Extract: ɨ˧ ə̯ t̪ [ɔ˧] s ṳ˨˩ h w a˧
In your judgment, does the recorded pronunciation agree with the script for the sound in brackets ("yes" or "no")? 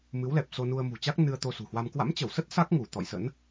no